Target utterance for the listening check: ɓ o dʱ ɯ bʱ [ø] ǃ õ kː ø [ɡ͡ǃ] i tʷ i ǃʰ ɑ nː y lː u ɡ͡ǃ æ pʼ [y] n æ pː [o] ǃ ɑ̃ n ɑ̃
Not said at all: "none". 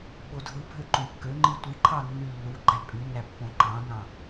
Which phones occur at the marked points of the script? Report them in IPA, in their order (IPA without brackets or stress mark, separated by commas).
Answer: ø, ŋ͡ǃ, y, õ